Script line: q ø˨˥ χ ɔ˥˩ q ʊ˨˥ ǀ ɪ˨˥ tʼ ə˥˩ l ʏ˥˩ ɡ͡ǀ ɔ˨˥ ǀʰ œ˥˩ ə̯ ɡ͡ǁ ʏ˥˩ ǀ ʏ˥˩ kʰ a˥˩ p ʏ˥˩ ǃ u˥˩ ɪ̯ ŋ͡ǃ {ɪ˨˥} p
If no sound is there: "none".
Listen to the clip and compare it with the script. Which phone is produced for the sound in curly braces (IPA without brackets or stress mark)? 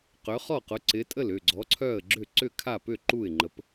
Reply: ə˨˥